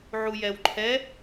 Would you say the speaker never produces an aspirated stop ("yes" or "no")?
no